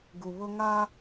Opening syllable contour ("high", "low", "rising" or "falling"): low